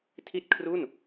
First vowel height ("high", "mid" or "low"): high